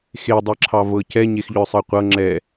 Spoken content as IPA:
x e dˤ e ǁʰ ɑ v ɤ c ɛ ɲ e x ʎ œ sˤ ə qʷ ɤ ŋ͡ǁ ɛ

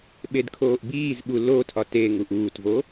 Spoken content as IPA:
ɓ e d kʰ oː ʔ b iː z ɓ u l o tʰ ɒ t e ŋ u ʔ uː t v o

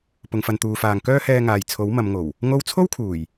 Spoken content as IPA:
p ʊ˨ ŋ f ɐ˨ n t̪ uː˨ f aː˨ ŋ k œː˥ h ɛː˧ ŋ aː˨ j t͡sʰ o˨˥ w m ɐ˨˧ m ŋ o˨˩ w | ŋ o˥ w t͡sʰ o˥ w kʰ uː˨˩ j

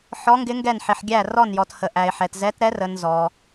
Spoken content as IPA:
ħ ɔ˧˥ ŋ ɡ ɪ˧˥ ŋ ɡ ɛ˦˨ n ħ ɪ˨ ħ ɡʲ æ˦˨ r ɔ˦˨ n j ɔ˨ t h ə˨ ʔ æ˨ ɪ̯ ħ ɛ˨ t z ɛ˧˥ t ɾ ɛ˧˥ r ə˨ n z ɔ˨

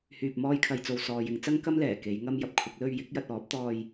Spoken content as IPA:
h yː˧ p̚ m ɔː˥ j kʰ ɐ˧ j t͡s o˧ w s ɔː˨ j ɪ˨˧ ŋ t͡s ɐ˥ ŋ k ɐ˥ m l ɛː˨˩ k e˨˧ j ŋ ɐ˥ m j ɐ˨ p̚ kʷʰ ɐ˨˥ k̚ l ɵ˧ ɥ j ɪ˨˥ k̚ j ɐ˧ t̚ ɔː˨˥ p̚ t̪ ɔː˧ j

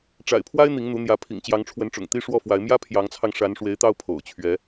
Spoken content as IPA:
ʈ͡ʂ a̰˨˩ ɪ̯ pʰ w a˥ ɪ̯ n̪ i˧˥ ŋ n̪ u˧˥ n̪ j ä˧˥ pʰ ḭ˨˩ ŋ t͡ɕ j ɑ˧˥ ŋ ʈ͡ʂʰ w ə˧˥ n ʈ͡ʂ ʊ̰˨˩ ŋ t̪ i˥ ʂ w ɔ˥˩ f w a˧˥ ɪ̯ m j ä˥ pʰ j ɑ˧˥ ŋ t͡sʰ ɑ˧ ŋ ʂ a˧˥ n ʂ w e˧˥ ɪ̯ t̪ ɑ˥˩ ʊ̯ pʰ o̰˨˩ ʊ̯ t͡ɕʰ ɥ ɛ˧˥

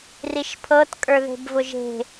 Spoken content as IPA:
r i ʃ pʰ ɤ t kʼ ə˞ ð e̤ b v ʊ ʒ e̤

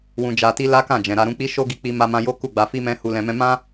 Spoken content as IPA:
w ũ˧ d͡ʒ a˧ t i˦ l a˦ k ã˦˨ d͡ʒ ɛ̃˨ ɾ a˧ ɾ ũ˧ k͡p i˦ ʃ o˦ ɡ i˧ k͡p i˧ m a˧ m ã˧ j o˦ k u˦˨ ɡ͡b a˧ f i˦ m ɛ̃˦ h u˧ l ɛ̃˧ m ɛ̃˦ m ã˦

